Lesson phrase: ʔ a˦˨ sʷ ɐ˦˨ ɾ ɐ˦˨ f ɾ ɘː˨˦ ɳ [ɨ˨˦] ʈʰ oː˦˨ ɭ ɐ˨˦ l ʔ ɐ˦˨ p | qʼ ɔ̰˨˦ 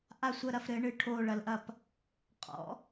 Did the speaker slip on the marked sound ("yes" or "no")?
yes